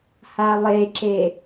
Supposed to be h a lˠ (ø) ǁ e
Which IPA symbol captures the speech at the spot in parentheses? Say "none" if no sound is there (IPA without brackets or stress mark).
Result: e